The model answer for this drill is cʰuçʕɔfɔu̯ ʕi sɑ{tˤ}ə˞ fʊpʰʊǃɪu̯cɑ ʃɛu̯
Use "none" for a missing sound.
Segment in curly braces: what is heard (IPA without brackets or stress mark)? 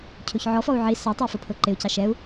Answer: tˤ